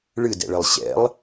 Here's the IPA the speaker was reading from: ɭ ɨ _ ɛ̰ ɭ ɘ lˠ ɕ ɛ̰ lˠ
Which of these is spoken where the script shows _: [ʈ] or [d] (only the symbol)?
d